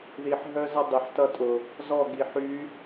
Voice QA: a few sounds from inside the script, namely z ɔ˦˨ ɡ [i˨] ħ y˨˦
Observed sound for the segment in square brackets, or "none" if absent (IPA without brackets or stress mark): i˨